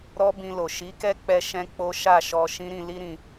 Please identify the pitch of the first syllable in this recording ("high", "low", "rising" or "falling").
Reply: high